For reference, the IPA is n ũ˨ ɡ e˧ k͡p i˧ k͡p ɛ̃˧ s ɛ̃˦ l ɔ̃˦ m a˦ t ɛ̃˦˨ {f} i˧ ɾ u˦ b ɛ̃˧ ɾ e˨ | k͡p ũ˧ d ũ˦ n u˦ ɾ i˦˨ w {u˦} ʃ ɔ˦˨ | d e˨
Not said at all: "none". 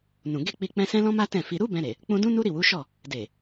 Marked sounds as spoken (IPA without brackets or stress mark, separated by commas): f, u˨˦